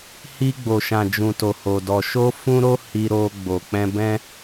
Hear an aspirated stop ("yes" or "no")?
no